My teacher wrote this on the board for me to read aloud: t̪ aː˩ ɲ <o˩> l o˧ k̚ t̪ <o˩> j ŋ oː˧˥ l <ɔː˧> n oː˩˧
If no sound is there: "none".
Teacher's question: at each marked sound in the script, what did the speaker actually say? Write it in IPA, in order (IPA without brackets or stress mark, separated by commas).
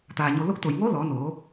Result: o˩, o˩, ɔː˩˧